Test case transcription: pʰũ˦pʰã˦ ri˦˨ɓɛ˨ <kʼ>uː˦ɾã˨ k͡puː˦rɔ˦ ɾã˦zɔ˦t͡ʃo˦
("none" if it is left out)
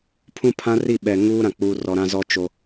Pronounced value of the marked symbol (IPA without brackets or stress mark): ŋ